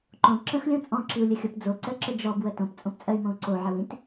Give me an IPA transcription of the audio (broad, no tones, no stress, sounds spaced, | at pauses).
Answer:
ǃ õ ǁ ə̃ x lʲ õ t͡sʼ ɔ̃ ǁ i u̯ lʲ ə xʲ o p d͡z o ǀ ɜ ǁ ə d͡ʒ ɔ b w ə t õ p t͡sʼ õ p t͡sʼ ɜ y̯ m õ u̯ ǀ o ʕ ə w ĩ t